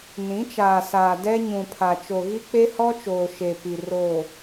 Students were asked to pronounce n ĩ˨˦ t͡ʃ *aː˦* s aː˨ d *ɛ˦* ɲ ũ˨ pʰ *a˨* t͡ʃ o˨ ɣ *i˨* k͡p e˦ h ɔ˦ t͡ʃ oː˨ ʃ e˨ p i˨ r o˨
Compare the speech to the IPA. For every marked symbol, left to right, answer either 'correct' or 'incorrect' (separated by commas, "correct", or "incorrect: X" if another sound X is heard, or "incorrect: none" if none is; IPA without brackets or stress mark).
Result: incorrect: aː˨, correct, correct, incorrect: i˦